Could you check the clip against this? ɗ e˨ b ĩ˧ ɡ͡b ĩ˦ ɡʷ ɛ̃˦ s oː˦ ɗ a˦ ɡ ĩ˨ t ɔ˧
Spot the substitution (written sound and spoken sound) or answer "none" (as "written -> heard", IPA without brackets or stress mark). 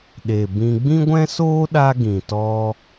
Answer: none